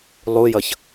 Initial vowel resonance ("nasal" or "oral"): oral